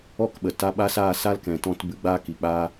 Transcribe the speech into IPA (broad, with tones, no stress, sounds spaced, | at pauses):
ɔ˦ k ɓ ə˨ t a˧ ɓ a˦ s aː˦˨ s a˦ l k ɛ̃˨ t ɔ̃˦ t b ɨ˧ ɡ͡b aː˦ k i˨ k͡p aː˦